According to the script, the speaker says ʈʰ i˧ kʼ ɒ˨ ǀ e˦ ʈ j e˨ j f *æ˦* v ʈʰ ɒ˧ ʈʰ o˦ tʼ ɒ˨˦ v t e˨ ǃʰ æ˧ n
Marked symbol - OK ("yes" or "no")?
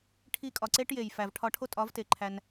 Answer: no